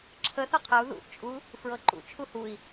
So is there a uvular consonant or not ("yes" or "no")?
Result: yes